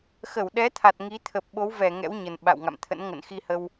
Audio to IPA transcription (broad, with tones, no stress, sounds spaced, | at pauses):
x ə˧˩ w ɗ ɛ˨˦ t̪ʰ a˨˩ t̚ ŋ i˨˦ t̪ʰ ə˨˩ p̚ ɓ o˨˦ w v ɛ˧˩ ŋ ɛ̰˧˥ w ɲ ə˨˩ n ɓ a̰˧˨ w ŋ a̰˧˨ m t̪ʰ ə̰˧˥ n ŋ ə̰˧˨ n x i˧ h ə˧ w